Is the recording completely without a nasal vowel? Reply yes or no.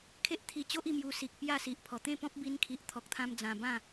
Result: no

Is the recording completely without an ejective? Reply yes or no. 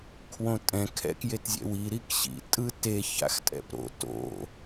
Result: no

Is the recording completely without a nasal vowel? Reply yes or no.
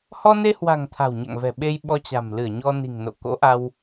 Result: yes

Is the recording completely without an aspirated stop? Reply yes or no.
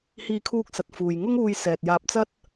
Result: no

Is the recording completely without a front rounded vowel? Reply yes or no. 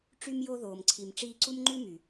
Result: no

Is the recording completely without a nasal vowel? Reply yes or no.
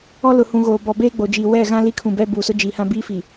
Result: no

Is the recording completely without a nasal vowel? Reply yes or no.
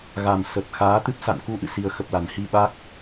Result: yes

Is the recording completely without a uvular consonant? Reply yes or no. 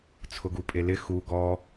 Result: yes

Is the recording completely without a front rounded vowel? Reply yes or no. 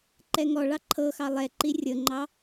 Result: yes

